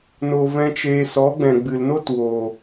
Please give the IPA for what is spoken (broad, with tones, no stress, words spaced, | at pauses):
no˧vɛ̃˦t͡ʃeː˧ sɔ˨˦ɡ͡bɛ̃˨ɡ͡bɨ˨lno˦t wo˨